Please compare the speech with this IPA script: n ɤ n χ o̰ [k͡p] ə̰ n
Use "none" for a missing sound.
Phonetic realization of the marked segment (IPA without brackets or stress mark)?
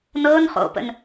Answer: p